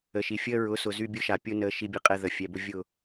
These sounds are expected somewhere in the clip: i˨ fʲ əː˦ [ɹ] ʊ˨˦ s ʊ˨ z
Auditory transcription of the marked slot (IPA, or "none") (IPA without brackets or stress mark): ɹ